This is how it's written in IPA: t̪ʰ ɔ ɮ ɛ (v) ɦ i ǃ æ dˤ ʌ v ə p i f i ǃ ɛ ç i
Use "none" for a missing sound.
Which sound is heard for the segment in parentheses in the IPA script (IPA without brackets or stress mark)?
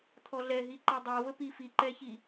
none